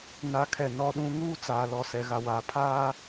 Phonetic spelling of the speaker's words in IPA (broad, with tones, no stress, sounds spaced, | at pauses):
n a˦ kʰ ɛ˦˨ n ɔ˦ ɗ ũ˦ ŋ uː˦ t͡s aː˨ l ɔ˨ s ɛ˨ ɣ a˨ w aː˨ pʰ aː˦